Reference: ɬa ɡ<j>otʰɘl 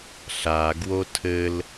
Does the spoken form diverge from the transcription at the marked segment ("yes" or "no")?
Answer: yes